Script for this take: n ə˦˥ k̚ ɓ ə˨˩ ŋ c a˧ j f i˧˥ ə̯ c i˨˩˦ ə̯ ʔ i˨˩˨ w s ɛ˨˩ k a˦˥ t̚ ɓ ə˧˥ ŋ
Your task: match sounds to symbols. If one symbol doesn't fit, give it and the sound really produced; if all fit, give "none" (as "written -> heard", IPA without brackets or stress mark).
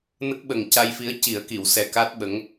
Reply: ʔ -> k